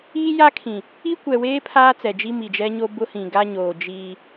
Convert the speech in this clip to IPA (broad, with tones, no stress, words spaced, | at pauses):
iː˦ja˦kʰĩ˨ | i˦kʷɛ˨weː˦ pʰaː˦ t͡sɛ˨d͡ʒi˦ mi˨d͡ʒɛ˦ɲo˦ bʊ˦hĩ˨ ɡa˦ɲoː˨d͡ʒiː˦